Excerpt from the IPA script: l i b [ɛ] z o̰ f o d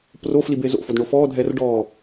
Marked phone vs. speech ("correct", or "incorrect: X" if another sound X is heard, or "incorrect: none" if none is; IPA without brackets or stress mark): incorrect: e